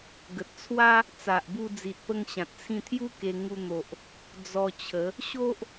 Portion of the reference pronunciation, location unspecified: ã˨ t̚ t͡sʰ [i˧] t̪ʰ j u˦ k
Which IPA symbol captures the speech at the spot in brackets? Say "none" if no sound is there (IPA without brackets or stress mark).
ĩ˧